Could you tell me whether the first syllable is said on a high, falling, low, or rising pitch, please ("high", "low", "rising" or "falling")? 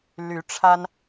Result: rising